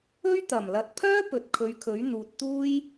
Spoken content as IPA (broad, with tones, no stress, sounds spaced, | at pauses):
ɵ˥ ɥ t̪ ɐ˨˩ m l ɐ˨˥ t̚ pʰ œː˥ p ɵ˨ t̚ kʰ ɵ˨˧ ɥ kʰ ɵ˨˥ ɥ n̪ uː˨ t̚ t̪ uː˥ j